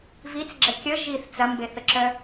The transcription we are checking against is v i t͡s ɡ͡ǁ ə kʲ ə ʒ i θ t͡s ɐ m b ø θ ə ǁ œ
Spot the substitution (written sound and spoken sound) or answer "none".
ø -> e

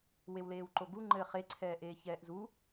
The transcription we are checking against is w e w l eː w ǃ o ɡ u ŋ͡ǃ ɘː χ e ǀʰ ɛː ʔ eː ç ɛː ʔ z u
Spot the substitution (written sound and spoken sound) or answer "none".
none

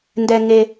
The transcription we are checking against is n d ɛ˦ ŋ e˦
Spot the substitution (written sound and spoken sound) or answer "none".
none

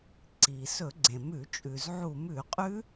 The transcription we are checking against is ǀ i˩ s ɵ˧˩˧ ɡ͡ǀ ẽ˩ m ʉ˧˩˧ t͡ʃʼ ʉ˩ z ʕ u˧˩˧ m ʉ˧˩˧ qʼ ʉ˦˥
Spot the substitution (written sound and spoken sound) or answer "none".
none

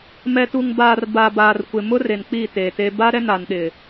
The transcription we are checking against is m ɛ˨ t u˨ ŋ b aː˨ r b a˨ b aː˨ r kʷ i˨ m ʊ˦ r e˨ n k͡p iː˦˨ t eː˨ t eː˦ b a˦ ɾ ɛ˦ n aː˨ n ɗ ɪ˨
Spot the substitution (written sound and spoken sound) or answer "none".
i˨ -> ɪ˨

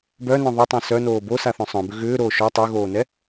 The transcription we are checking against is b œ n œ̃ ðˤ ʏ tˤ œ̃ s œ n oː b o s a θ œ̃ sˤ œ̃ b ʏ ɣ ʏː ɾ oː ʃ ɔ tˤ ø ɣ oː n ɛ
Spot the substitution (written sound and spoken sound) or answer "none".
none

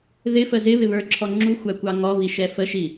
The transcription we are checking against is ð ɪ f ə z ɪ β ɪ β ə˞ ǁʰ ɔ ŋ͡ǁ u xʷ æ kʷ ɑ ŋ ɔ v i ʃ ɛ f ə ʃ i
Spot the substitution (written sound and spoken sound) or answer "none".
none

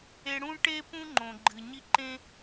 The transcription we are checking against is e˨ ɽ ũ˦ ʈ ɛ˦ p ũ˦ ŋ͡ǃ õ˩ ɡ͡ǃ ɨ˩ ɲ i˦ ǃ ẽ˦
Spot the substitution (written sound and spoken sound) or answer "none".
ɛ˦ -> e˦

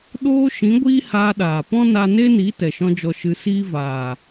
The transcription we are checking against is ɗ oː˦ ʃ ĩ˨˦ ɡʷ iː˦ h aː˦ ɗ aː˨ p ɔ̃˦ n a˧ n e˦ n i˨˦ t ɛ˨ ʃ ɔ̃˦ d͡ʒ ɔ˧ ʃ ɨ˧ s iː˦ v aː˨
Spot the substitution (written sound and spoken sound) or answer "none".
none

